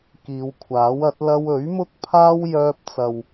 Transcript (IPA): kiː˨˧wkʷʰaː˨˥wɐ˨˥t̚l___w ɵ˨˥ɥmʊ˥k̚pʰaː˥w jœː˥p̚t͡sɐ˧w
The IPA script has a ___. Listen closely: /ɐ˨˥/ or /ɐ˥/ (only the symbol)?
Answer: ɐ˥